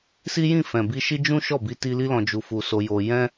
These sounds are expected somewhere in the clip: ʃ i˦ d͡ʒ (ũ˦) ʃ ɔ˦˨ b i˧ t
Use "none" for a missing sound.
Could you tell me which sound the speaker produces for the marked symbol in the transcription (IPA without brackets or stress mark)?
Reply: ũ˦